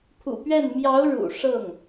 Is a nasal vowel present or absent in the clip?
absent